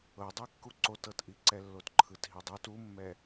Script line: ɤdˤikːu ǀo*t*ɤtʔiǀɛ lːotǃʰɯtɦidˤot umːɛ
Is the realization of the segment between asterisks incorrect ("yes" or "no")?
no